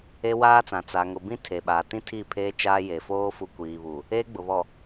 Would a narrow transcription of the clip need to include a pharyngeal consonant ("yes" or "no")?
no